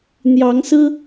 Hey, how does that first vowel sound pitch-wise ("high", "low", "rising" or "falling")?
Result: rising